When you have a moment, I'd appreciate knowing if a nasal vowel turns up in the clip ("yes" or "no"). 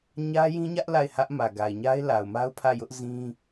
yes